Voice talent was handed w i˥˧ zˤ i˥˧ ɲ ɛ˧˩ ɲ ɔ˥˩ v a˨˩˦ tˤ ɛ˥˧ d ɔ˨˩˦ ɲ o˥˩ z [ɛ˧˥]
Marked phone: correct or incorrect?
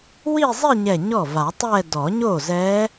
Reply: correct